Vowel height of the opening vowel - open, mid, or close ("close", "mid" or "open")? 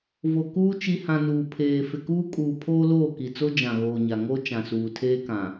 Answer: mid